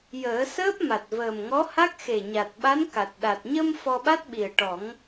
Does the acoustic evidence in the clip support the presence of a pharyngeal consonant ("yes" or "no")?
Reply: no